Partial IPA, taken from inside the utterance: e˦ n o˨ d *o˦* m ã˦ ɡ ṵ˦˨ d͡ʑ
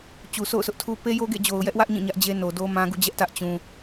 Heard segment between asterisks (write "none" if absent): o˦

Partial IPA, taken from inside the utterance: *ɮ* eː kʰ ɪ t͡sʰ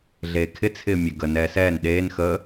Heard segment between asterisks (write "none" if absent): ɮ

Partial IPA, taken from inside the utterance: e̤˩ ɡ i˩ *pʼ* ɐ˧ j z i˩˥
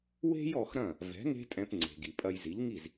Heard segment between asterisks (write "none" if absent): pʼ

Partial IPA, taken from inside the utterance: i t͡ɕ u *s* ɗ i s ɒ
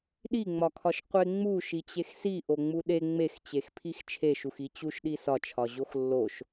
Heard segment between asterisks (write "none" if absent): ʃ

